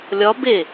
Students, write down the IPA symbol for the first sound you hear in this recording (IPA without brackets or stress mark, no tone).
lʲ